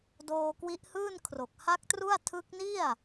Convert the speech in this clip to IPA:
d oː˧ k w i˦˥ ʔ h ɯː˥˩ n kʰ r o˨˩ k̚ h a˦˥ k̚ t r u˥˩ a̯ tʰ ɯ˦˥ k̚ n i˥˩ a̯

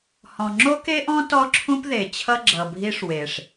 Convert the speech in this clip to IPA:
h ɔ̃˨ ŋ͡ǁ o˦ k e˦ ʔ ɔ̃˦ t ɔ˦ ǁʰ ũ˦ p ð e˨ t͡ɕʰ ʌ˦ ɡ͡ǁ ʌ˨ bʱ i˦ ʂ w e˨ ʂ

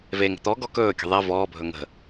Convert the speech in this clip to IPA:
v e ŋ ə̤ t̪ ɔ ɡ ɔ k ɵː kʲ ə̤ ðˤ ɛ v ɔː bʱ ɵ ŋ ə̤

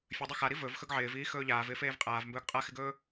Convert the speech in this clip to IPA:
fʲ ɵ dˤ ɵ x a ɾ i v ɵ v x ɵ ɡ ʕ ɪː v iː x ɵː ʎ aː v ɪː f eː v qʼ aː v m b ɵː ɡ qʼ a x ɪ ɡ ɵː

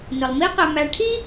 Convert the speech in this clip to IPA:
n ʊ˩ lˠ m i˦ q ɛ˨ m æ˨ ʈʰ i˥

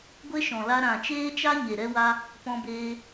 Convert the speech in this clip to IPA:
ɡʷ e˦ ʃ ɔ̃˨ l a˧ ɾ ã˨ t͡ʃ eː˦ t͡ʃ a˦ ɲ e˨ ɾ ɛ˦ w a˦ | p ɔ̃˦ b eː˦

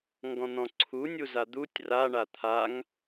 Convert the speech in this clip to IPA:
ŋ ɡ ɔ̃ n̪ ɔ̃ ǀʰ u nʲ u z a d̪ u tʲ r a ɳ a t̪ʰ a ŋ

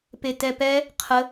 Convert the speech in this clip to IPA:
p e t ɛ p ɛ | qʰ ə

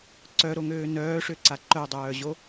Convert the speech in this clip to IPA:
ǀ œ ɾ o ŋ øː n œː ʂ ø ǀ a ǃ œ dˤ œː ʑ o

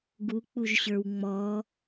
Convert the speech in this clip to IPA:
ɡ u k͡p u ʒ ɕ ə˞ w ŋ͡m ɔ

